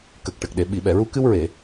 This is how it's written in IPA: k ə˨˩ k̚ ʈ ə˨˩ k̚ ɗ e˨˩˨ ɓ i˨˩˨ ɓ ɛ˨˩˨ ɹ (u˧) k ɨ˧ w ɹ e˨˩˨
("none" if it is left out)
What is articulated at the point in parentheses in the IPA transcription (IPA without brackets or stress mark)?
u˧